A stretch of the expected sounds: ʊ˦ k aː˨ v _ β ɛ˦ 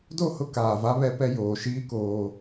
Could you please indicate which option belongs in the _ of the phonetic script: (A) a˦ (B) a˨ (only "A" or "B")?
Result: A